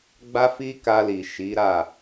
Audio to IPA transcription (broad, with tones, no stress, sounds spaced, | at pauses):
ɡ͡b a˦ f i˦ k a˧ l i˨ ʃ i˨˦ ɾ a˦˨